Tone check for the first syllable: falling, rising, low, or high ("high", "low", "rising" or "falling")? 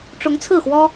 rising